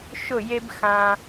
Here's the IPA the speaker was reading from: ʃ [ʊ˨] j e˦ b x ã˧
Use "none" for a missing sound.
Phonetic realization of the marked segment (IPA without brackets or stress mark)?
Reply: ʊ˦˨